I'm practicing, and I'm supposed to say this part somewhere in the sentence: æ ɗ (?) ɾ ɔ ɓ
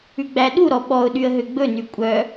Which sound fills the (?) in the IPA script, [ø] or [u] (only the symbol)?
u